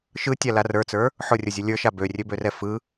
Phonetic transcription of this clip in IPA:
ʃ ɯ tʲ a l a r ə˞ t͡s ə˞ | ħ ʊ rʲ ʊ zʲ ʊ lʲ ə˞ ʃ a b ø rʲ ø b ø r ɛ f ɯ

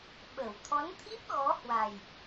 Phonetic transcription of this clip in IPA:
ɓ ə˧˩ w t̪ʰ ɔ˨˦ n t̪ʰ i˦˥ p̚ ɣ ɔ˨˦ h w a˨˩ j

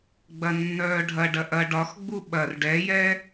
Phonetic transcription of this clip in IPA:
ɡ͡b ɐ nː œː ɖʱ ɐ ɖ ɐ ʔ ɐ ɖ ɒ x ɡ͡b u ɓ ɐ r ɖ ɛ j ɛ

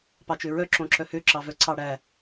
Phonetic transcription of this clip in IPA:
p ɑ t͡ʃ ø ɹ œ ǁ õ ǁ œ h ø ǁ ɑ v œ ǀ ɑ ɽ æ

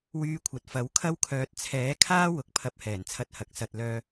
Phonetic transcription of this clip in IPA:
w yː˧ kʷʰ ɐ˨ t̚ f ɐ˨˥ w kʰ ɐ˥ w kʰ œː˨ t̚ t͡sʰ ɛː˨˥ kʰ aː˥ w ʊ˨ k̚ pʰ ɐ˧ p̚ h ɛː˨˩ n t͡sʰ ɐ˧ t̚ h ɐ˨ k̚ s ɐ˨ t̚ l œː˧

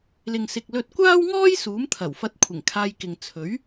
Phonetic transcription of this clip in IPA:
l ɪ˨ ŋ s ɪ˨ k̚ l ɵ˧ t̚ kʷ aː˥ w ŋ ɔː˥ j s uː˨˥ m t̪ʰ ɐ˨˩ w f ɐ˧ t̚ kʷʰ ɪ˨˩ ŋ kʰ aː˧ j k ɪ˨ ŋ t͡sʰ ɵ˨˥ ɥ

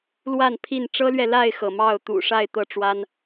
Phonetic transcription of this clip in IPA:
l w a˥˨ n pʰ i˥˨ n ʈ͡ʂ ɤ˦ l ɥ ɛ˨ l a˥˨ ɪ̯ x ɤ˩ m ɑ˥˨ ʊ̯ t̪ ṵ˨˩ ʂ a˥˨ ɪ̯ t̪ ɤ˥˨ ʈ͡ʂ w a˦ n

